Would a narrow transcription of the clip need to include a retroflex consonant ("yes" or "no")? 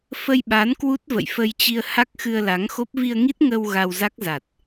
no